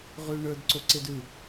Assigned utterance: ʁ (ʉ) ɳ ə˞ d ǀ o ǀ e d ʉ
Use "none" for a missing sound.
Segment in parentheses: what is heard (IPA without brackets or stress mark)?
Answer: ʉ